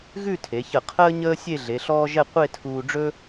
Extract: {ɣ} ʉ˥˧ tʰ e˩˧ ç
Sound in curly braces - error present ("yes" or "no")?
no